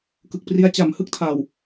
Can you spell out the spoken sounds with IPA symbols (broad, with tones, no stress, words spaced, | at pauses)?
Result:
kɯ˨˩k̚pri˦˥a̯ t͡ɕa˨˩m hɯ˥˩k̚tʰa˨˩w